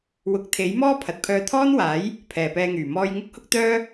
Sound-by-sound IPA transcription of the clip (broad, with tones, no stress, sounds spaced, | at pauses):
w ʊ˨˥ k̚ t̪ʰ e˨˥ j m ɔː˥ pʰ ɐ˨ t̚ pʰ œː˧ t̪ʰ ɔː˥ n w aː˨˥ j | pʰ ɛː˨ p ɛː˧ ŋ yː˨˩ m ɔː˧ j ŋ ʊ˥ k̚ h ʊ˥ k̚ t̪ œː˥